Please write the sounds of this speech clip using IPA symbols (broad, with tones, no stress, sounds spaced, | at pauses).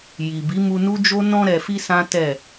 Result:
j i˨ b i˨˦ m u˧ n u˦ d͡ʒ o˦ n ɔ̃˧ ɾ ɛ˨ f i˧ s ã˦ t ɛ˦˨